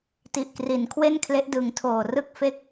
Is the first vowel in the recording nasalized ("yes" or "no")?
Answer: no